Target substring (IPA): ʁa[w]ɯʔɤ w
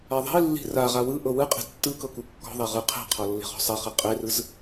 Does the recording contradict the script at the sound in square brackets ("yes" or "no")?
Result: no